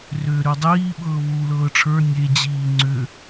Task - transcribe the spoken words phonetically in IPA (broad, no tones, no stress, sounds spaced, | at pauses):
r ʏː ɾ ʉ dˤ iː ɓ ɤː β uː l ɤː ʈ͡ʂʰ ə˞ nʲ e d͡ʑ iː ŋ͡ǀ ʏ